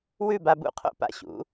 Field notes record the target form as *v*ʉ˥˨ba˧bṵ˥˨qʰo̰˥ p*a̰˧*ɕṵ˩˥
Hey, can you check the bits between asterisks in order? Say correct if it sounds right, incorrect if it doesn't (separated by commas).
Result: incorrect, correct